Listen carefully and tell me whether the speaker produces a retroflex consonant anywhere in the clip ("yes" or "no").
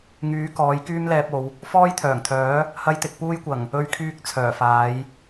no